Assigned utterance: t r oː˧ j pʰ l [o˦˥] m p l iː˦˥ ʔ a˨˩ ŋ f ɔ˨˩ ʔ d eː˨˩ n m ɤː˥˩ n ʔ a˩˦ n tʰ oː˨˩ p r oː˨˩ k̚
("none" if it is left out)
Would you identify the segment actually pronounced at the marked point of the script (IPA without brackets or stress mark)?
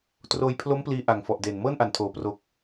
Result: o˦˥